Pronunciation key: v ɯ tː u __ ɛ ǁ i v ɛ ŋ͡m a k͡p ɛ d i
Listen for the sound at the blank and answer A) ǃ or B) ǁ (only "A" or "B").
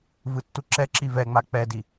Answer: B